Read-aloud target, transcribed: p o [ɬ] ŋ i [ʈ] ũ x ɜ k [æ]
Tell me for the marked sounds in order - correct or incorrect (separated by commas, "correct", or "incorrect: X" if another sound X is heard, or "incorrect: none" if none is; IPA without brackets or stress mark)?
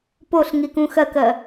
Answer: correct, incorrect: k, incorrect: ɜ